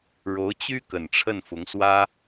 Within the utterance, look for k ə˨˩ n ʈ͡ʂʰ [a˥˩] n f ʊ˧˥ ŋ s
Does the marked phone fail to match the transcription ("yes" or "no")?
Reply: yes